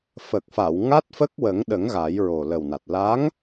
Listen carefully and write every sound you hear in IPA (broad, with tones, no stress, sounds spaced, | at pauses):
f ə˨˩ k̚ f a˨˩˨ w ŋ a˦˥ t̚ f ə˦˥ k̚ w ə˨˩˦ ŋ ɗ ə˨˩˦ ŋ ɣ a˨˩˦ j ɹ o˨˩ l ə˨˩ w n a˨˩ t̚ l a˧˥ ŋ